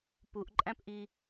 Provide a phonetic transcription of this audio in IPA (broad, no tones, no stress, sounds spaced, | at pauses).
p u ʔ ǃʼ æ̃ p ʔ i